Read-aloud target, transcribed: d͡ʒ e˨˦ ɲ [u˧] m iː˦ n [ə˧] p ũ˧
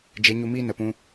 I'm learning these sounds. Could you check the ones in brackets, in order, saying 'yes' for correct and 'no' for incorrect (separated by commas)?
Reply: yes, no